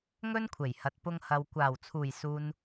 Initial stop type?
aspirated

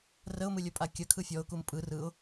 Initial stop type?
ejective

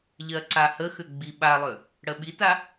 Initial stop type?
click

